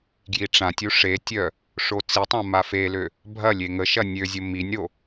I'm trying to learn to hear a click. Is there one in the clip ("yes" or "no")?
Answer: no